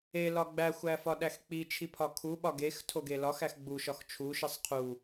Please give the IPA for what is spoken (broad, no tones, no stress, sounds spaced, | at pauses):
e l ɒ ɡ͡b æ xʷ æ f ɒ ɗ æ x k͡p i t͡ʃʰ i pʰ ɒ kʰ u ɓ ɒ ɡ e x tʰ o ɡ e l ɒ x æ x ɡ͡b u ʃ ɒ x t͡ʃʰ u ʃ i sˤ qʰ u